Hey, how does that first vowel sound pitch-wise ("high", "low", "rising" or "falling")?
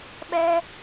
high